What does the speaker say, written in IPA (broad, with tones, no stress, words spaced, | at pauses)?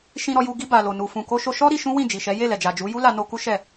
ʃĩ˧ɾɔ˧ju˧ ɡi˧ ba˨lo˨nu˨ fũ˨ko˧ʃo˧ʃɔ˦ ɾi˧ʃũ˦ wĩ˦˨d͡ʒi˨ʃɛ˨˦ je˦˨lɛ˨d͡ʒa˨d͡ʒu˨˦ ju˦ la˧no˧ ku˦ʃɛ˦˨